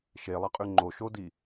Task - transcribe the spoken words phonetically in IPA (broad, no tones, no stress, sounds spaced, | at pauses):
ʃ e lˠ ɐ qʼ ʉ ŋ͡ǃ o ʃ o d i